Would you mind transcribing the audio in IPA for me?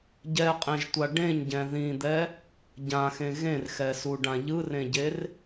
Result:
ɟɛqʼẽʒtʷa ɖẽɲɟɛ̃ ðĩd̪ɛ | ɟãxẽ ɣẽrxɛsuɖã ʎɯrẽɟer

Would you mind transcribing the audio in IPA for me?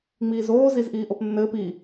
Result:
ŋ͡miːzoː zizʔiːʔopnːɘːp i

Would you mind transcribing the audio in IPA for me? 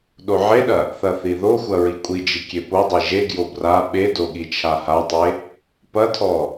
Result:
ɗoʕeɗɐ | θɐθiðoxʷɐ ɹikʷʼid͡ʒi kʲepodˤi ʒeɡjo bra ɓedo ɠit͡ʃʰahatˤe | pɐtʰɔ

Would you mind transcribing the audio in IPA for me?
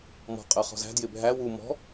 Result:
mɔ̤qʼɜ χɔ̤zæ̤ djɪbʱæ wu mɔ̤

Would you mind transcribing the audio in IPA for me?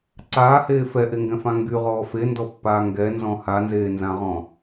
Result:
ǀaːheː fɛʔeŋɡɛ̃fã ŋɡyʁɔː fendɔpːaː ŋɡɛnzɔ̃ hanzeːnzãʁɔ̃

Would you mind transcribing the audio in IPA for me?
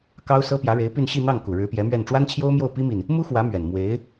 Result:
kɑ˥ʊ̯ sɤ˥pjä˧˥ɻe˧˥ɪ̯py˥˧n ɕi˥˧ n̪ɑ˥˩ŋku˨˩ ɻɻ̩˧˥pjɛ˧˥mɥɛ˥˩n ʈ͡ʂwa˥nt͡ɕʰjo˥ʊ̯mjo˥˩ʊ̯ pi˥mi˨n | mu˥xwä˧˥ mɥɛ˨˩n mwe˧˥ɪ̯

